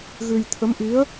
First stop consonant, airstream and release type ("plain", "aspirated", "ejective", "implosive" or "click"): aspirated